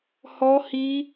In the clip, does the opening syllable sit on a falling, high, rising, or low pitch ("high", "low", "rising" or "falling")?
high